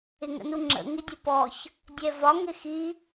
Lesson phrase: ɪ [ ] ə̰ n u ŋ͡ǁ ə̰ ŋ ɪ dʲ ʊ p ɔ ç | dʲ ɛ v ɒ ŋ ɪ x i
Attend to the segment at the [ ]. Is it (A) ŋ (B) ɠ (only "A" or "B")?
A